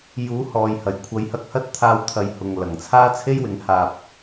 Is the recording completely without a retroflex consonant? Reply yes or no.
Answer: yes